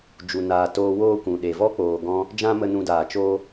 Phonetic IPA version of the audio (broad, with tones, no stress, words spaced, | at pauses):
d͡ʒu˨naː˨ toː˧woː˦kʷũ˨ɗe˨ vɔ˦k͡poː˨ɡɔ̃˧ | d͡ʒã˦mə˧ nũ˧daː˨t͡ʃoː˦